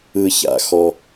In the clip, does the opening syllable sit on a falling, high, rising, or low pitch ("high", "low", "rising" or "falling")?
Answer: low